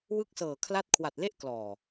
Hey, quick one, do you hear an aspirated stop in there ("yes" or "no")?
yes